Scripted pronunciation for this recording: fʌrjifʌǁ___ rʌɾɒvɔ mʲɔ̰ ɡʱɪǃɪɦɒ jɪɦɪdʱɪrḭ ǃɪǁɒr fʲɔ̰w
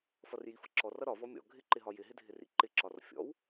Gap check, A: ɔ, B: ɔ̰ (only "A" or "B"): A